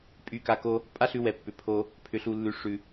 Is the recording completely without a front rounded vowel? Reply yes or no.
no